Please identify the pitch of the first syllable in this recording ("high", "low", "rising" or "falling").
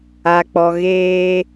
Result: low